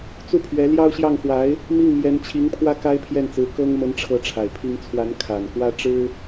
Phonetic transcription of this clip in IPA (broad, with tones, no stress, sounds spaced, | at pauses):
t͡s u˥˩ pʰ ɥ ɛ˧˥ l j ɑ˥ ʊ̯ ɕ j ɑ˥˩ ŋ x w a˧˥ ɪ̯ | m i˥˩ ŋ m j ɛ˧˥ n t͡ɕʰ i˧˥ ŋ pʰ w ä˥ k a˥ ɪ̯ pʰ j ɛ˥˩ n t͡s ɹ̩˧˥ k ɤ˥ ŋ m ə˥ n ʈ͡ʂʰ ɤ˥˩ ʈ͡ʂʰ a˨˩ ɪ̯ pʰ i˥ ŋ t͡sʰ w a˧˥ n kʰ a˨˩ n k w ä˥ ʈ͡ʂ ɻ̩˥